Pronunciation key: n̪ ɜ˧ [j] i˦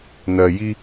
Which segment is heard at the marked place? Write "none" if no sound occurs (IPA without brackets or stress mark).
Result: j